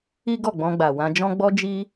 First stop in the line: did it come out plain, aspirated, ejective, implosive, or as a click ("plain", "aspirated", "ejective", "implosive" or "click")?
plain